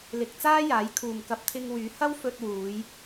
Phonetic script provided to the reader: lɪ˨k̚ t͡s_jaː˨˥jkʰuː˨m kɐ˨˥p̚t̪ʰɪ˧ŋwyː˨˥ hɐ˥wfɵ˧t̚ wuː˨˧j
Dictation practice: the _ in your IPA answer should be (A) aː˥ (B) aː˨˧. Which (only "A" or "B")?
A